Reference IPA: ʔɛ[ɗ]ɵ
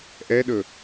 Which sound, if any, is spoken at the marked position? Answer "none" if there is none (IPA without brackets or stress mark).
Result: ɗ